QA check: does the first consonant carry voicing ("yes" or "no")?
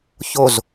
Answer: no